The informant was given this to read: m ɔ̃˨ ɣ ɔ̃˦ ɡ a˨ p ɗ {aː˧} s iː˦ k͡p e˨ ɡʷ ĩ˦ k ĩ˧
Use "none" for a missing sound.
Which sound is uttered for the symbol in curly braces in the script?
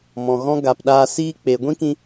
aː˧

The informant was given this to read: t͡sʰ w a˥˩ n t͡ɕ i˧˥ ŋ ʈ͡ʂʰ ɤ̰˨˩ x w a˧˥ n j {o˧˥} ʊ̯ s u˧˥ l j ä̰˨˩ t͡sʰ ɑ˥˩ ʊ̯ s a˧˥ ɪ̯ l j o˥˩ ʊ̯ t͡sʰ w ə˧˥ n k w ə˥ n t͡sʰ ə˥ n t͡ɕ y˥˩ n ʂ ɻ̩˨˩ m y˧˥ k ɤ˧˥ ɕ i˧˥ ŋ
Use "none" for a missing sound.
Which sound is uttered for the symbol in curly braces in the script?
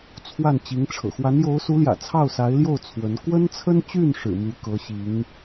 o˧˥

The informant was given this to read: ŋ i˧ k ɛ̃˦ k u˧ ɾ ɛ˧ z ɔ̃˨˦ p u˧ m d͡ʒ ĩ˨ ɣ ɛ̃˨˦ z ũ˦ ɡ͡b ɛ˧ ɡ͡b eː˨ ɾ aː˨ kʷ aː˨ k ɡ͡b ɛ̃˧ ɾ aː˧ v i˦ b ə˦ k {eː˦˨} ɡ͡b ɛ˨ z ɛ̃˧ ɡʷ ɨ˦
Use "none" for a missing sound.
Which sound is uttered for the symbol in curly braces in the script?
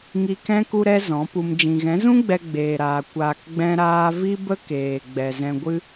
eː˨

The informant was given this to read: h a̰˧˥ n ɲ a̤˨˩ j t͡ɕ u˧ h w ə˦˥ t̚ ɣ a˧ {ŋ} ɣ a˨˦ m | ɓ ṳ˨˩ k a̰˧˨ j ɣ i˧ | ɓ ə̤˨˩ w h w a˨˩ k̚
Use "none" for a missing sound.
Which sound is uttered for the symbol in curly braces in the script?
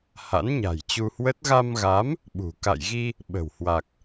m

